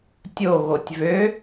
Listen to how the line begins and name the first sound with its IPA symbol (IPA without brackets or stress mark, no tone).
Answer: tʲ